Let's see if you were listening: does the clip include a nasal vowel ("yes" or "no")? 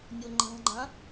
yes